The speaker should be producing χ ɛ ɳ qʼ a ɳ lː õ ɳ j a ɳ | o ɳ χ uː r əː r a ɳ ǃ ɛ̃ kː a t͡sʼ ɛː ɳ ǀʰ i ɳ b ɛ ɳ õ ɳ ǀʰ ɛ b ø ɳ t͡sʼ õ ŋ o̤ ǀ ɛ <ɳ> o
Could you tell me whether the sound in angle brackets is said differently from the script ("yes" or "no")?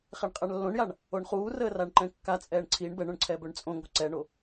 no